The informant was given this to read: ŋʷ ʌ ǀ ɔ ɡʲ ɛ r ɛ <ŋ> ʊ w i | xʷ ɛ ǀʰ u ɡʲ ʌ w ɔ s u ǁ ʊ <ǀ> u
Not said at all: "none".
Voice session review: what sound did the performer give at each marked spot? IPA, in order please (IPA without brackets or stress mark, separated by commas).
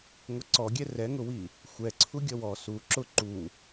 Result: ŋ, ǃ